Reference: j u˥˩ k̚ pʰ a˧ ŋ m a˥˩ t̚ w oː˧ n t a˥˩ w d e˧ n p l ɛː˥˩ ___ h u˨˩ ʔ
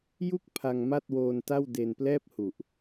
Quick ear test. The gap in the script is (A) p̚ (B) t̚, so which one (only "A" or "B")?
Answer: A